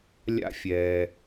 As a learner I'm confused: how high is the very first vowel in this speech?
low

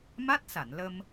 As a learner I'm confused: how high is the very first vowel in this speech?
low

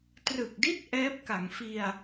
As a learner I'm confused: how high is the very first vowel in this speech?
high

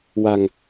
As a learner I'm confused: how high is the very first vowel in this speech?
low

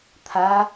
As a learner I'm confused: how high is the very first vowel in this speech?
low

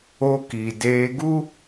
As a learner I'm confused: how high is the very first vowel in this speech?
mid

